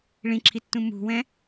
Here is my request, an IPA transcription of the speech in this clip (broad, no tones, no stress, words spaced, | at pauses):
ɭĩǁʰitːũ mṳwɛ̃